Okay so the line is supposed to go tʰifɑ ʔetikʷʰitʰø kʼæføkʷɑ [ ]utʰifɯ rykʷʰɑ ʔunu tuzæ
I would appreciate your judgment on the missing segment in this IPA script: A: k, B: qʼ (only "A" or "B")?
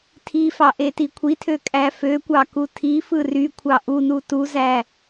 A